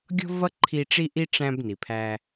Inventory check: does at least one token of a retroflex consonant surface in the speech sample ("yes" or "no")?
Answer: yes